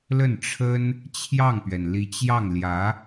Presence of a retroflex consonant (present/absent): present